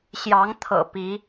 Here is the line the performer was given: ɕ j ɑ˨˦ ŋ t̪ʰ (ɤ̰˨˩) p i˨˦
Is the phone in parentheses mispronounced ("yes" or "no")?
no